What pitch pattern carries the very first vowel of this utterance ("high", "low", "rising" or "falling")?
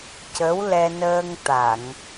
rising